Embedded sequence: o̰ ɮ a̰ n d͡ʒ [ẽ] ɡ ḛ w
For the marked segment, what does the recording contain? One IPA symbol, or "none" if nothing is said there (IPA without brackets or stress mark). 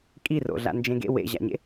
ẽ